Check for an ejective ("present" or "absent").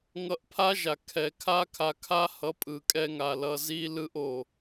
present